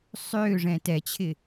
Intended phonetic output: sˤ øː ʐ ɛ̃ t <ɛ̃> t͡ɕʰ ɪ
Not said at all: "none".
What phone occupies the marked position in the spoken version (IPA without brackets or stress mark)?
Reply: ɛ